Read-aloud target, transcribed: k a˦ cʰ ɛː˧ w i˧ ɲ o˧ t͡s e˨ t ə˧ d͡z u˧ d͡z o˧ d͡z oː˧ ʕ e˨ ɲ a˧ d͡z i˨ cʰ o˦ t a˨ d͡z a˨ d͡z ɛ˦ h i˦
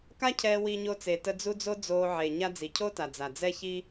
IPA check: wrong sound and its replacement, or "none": h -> ç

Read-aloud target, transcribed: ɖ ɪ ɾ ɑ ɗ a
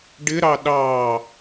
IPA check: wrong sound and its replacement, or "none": a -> ɑ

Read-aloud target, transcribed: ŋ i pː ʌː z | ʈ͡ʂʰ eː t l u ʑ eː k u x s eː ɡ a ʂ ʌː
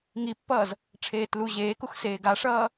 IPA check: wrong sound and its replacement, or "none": none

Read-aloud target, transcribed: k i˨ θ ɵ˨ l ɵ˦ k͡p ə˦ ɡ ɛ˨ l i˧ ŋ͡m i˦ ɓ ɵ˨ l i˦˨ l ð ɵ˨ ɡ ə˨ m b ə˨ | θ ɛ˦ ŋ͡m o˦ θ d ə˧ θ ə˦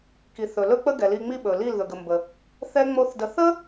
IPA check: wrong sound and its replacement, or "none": none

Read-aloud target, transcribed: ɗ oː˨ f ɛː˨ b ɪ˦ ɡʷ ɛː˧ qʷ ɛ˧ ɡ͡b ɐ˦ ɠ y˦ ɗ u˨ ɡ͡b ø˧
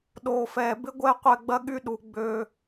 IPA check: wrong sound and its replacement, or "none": none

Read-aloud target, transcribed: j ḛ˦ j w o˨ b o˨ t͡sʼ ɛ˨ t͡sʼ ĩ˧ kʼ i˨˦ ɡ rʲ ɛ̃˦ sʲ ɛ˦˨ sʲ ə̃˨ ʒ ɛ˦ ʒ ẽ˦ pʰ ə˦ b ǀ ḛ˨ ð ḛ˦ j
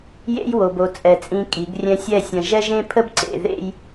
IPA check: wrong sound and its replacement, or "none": none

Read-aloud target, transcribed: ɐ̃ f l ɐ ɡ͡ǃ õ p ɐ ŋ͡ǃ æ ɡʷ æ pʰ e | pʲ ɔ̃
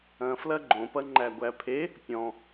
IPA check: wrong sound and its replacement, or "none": none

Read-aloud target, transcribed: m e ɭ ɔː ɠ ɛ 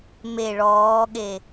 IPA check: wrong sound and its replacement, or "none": ɛ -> e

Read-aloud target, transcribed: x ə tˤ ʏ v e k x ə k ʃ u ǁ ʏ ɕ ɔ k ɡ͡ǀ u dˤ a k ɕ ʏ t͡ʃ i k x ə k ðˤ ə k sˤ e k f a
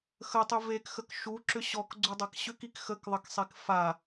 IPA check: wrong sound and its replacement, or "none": t͡ʃ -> k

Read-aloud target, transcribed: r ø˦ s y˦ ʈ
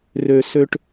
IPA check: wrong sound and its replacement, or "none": y˦ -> ø˦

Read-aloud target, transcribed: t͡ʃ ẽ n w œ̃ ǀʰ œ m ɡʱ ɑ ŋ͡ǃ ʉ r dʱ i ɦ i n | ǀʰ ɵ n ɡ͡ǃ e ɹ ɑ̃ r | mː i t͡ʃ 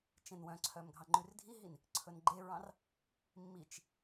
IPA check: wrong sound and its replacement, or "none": none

